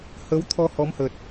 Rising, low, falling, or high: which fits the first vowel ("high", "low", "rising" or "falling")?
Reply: rising